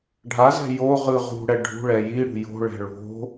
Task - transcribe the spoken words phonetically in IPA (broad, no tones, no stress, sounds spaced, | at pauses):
ɖʱ a z ɛ̤ j o ʁ ɯ ʁ ṳ ɽ ɛ ɖʱ ṳ ɭ ɛ j i ɽ ṳ j o̤ ɭ ɛ̤ ɭ o̤